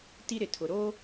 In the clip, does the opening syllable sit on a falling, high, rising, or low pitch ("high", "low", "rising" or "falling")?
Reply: high